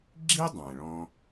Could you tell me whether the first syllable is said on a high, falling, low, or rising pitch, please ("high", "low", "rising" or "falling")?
high